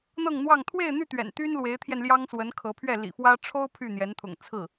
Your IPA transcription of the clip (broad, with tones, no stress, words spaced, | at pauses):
n̪ɤ˥˧ŋn̪wɑ˥˧ŋ t̪ʰwe˥˧ɪ̯n̪y˥˩ t̪ɥɛ̰˨˩nt̪y˥nlwe˧˥ɪ̯t̪ʰjɛ˧n ljɑ˥ŋswə˧˥n kʰɤ˧˥pʰɥɛ˥˩ lḭ˨˩fwä˥ ʈ͡ʂʰo˥ʊ̯ pʰy˥˩n̪jɛ˧˥nt̪ʰʊ̰˨˩ŋ t͡sʰɹ̩˥˩